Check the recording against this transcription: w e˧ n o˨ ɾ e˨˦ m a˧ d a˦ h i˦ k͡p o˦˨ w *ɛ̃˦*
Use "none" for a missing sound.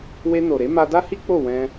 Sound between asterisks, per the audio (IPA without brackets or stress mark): ɛ̃˧